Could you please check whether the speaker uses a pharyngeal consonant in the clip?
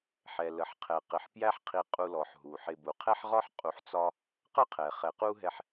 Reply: yes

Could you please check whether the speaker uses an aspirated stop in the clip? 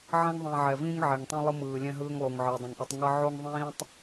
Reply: no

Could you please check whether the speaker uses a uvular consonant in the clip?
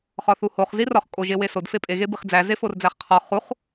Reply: yes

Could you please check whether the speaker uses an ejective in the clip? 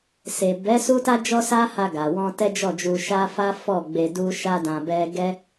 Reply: no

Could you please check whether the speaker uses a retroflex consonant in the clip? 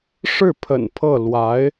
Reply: yes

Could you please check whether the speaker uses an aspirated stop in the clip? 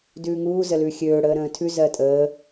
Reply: yes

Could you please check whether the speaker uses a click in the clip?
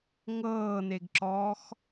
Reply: yes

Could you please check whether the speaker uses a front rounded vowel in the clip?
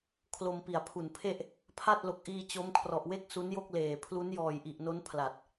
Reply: no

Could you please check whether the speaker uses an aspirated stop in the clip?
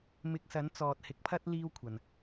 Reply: yes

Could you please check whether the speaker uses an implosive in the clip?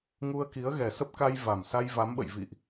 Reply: yes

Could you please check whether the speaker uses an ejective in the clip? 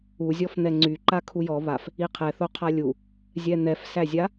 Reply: no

